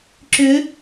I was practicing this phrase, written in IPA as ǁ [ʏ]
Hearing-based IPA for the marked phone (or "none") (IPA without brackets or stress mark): ʏ